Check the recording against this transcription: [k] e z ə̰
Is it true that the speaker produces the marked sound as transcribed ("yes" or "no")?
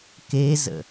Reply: yes